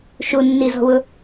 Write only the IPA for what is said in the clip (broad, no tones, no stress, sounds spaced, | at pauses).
ʃ u nː i z ɔ̤ w ʊ